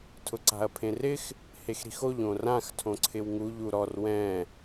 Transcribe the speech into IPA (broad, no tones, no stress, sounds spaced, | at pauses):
tʰ ʊ ǀ a̤ ɐ̯ pʰ ẽ r ɪ x | h e x ɾ i̤ x o ʎ õ r ã x tʰ õ ǀʰ ɪ w ŋ u ʎ u ɾ ɔ r w ɛ̃